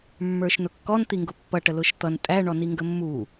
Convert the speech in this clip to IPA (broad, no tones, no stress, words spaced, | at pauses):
mːə˞ʃnʊkːɔn t̪iŋɡʊpːʌ ʈəlʊʃt̪ʌn tʼæ ɳɔniŋɡəmːu